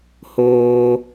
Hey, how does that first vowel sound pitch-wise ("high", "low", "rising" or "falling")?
low